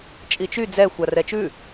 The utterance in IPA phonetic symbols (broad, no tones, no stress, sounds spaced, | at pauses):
t͡ʃʼ i t͡ʃ y d͡z ɛ xʷ a r ɛ t͡ʃ ʉ